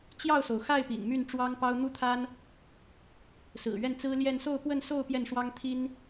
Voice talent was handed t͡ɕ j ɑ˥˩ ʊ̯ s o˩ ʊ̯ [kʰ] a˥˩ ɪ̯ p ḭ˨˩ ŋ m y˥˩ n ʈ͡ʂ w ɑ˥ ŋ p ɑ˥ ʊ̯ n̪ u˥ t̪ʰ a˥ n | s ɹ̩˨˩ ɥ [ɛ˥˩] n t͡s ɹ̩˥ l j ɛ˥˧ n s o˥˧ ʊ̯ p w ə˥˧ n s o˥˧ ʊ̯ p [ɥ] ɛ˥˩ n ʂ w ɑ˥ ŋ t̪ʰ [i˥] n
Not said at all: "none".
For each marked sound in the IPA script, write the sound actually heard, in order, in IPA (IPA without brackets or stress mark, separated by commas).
x, ɛ˥˩, j, i˥